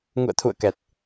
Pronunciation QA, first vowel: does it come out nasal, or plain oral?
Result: oral